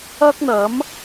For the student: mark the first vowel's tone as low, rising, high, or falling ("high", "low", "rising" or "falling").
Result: high